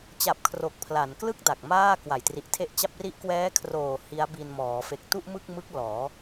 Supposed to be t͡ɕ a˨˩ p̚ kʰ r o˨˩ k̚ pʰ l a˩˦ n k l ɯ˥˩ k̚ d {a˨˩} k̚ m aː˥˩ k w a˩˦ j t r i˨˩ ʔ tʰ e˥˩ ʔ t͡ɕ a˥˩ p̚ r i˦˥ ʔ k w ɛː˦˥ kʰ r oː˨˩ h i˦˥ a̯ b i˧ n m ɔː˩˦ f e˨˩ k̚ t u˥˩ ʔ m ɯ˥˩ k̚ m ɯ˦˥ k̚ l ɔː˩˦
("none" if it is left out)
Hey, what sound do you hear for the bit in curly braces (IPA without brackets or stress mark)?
a˨˩